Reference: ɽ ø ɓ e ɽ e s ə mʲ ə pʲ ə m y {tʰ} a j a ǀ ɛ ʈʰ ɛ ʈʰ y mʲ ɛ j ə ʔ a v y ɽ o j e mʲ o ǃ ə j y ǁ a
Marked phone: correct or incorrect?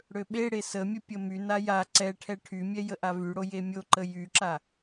incorrect